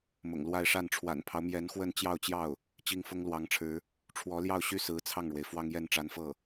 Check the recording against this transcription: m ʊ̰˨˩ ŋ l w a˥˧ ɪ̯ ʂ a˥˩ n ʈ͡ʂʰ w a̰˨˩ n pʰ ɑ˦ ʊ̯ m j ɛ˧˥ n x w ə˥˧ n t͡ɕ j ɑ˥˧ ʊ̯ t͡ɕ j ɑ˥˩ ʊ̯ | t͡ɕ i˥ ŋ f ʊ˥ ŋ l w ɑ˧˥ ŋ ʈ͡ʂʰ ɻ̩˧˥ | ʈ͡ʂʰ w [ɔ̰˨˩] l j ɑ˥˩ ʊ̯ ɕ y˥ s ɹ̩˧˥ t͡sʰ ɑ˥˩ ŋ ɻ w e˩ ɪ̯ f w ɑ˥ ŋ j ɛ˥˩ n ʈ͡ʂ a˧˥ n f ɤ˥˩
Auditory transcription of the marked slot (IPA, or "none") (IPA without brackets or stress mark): ɔ˧˥